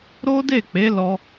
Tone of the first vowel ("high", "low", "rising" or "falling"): high